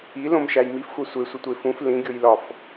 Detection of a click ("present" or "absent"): absent